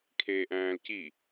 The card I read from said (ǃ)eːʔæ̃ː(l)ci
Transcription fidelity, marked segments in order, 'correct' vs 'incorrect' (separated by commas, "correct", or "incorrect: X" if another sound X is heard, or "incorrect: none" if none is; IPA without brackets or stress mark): incorrect: kʰ, correct